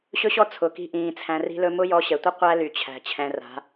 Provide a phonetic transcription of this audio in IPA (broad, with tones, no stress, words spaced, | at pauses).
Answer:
ɕɵ˦ɕɔ˦ t͡sʰʊ˨ ki̤˧ʔĩː˨ t͡sʰæ̃˧ri̤˦lɵ˦ mʊ˦jɔ˧ɕɛ˨tʷə˦ qʷæ˦ ly˨t͡ɕʰæ̤˨ t͡ɕʰɛ̃˧ra̤˨˦